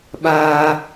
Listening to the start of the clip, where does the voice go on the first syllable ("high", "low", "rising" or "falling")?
high